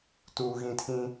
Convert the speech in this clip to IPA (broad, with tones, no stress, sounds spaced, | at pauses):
t uː˦ ɣ ĩ˦ tʰ ĩ˦